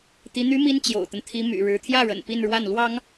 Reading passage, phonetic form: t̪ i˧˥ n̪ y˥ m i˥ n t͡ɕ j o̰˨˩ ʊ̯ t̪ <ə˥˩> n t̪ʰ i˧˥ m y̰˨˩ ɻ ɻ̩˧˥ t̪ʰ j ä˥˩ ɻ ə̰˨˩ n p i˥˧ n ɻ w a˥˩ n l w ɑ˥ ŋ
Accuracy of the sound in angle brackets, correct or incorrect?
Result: incorrect